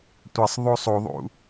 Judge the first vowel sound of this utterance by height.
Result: mid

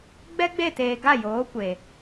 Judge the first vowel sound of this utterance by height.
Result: mid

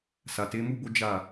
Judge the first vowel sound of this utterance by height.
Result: low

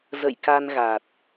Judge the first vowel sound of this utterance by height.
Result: mid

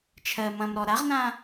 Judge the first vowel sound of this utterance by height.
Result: mid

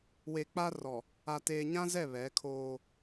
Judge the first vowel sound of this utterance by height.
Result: mid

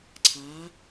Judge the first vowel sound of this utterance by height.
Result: low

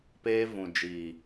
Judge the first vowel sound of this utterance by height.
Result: mid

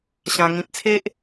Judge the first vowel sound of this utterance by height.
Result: low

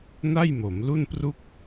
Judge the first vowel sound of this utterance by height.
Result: low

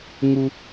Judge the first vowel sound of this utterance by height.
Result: high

